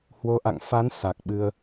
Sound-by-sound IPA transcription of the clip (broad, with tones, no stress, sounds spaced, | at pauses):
h w o˨˦ ʔ a̰˧˨ ŋ f a˨˦ n s a˨˩ k̚ ɓ ɨ˧ ə̯